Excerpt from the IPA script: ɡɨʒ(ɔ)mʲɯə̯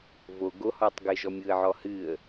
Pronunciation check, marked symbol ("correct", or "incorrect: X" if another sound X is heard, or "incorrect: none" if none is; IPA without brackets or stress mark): correct